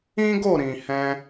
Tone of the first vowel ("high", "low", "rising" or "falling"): high